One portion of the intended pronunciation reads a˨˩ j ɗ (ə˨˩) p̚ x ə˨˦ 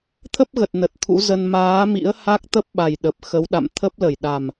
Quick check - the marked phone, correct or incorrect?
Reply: correct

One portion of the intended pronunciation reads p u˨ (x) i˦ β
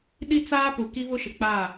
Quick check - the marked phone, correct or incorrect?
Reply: incorrect: k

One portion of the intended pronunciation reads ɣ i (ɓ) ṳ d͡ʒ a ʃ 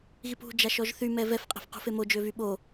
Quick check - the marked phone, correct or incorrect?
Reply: incorrect: p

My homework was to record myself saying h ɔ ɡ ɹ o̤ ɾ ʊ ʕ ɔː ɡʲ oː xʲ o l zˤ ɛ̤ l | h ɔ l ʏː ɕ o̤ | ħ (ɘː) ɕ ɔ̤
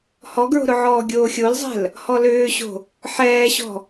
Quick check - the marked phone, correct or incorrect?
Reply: incorrect: ɛː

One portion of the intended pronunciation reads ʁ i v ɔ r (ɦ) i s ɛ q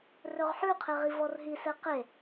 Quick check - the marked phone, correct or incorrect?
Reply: correct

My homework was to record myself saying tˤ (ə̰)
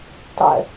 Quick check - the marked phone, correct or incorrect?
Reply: correct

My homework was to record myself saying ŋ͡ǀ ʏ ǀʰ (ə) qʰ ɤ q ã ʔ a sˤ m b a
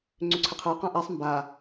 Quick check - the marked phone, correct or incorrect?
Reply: correct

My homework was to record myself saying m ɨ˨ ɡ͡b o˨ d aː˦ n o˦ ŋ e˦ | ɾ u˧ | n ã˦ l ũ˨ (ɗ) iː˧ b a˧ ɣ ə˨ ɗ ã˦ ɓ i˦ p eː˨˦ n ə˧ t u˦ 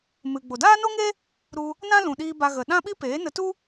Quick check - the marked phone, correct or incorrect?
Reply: correct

